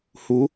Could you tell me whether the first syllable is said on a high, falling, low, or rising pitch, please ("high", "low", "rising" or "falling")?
rising